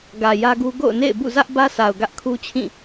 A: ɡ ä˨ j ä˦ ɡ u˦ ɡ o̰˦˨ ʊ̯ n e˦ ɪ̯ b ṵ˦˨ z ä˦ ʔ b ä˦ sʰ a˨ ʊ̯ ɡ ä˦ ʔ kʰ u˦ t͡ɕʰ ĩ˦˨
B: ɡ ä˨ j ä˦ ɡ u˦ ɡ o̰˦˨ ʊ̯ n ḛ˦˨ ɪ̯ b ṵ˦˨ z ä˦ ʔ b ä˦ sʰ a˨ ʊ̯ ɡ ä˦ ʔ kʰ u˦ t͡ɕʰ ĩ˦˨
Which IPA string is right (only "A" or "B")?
B